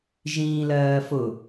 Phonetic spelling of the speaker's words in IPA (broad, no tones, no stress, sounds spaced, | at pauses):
ʒ ĩː l ɜː f ʊ